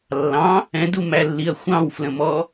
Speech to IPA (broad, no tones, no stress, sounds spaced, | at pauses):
lː ɑ̃ | ɛ̃ d u m æ lː i ɐ̯ xʷ ɑ̃ w f l ə̃ m ɔ